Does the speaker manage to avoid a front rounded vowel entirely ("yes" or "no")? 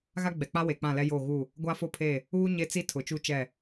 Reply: yes